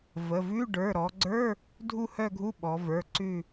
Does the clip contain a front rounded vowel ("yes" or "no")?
yes